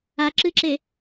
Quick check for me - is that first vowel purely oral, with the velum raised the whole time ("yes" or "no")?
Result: yes